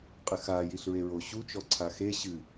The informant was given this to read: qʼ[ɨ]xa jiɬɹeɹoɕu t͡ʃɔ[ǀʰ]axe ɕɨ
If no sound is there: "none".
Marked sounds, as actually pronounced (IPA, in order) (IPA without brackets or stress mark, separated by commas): ɨ, ǀʰ